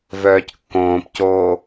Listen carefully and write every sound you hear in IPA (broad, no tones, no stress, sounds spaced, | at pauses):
v œː c kː õː p c oː